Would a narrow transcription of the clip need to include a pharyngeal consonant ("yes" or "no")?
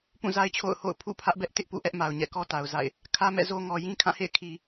no